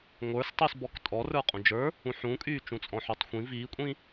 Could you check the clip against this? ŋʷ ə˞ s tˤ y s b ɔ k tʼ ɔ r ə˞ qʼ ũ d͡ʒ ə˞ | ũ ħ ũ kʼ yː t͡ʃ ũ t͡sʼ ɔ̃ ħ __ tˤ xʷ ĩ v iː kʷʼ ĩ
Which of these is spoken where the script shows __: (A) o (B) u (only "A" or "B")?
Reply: B